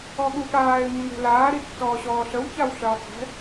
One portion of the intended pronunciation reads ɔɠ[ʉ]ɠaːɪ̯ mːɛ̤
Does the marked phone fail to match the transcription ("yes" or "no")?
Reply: yes